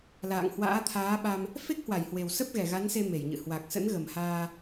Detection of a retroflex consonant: absent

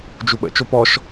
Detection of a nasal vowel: absent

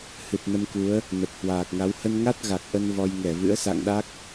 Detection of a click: absent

